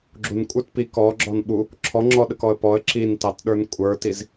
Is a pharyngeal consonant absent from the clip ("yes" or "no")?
yes